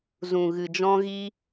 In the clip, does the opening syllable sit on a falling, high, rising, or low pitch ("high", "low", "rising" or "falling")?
low